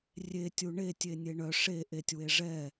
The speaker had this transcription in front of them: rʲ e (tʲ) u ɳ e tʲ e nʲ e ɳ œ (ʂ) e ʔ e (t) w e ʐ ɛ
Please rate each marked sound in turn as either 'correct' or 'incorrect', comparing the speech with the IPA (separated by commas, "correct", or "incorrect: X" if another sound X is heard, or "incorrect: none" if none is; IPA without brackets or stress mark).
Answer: correct, correct, incorrect: tʲ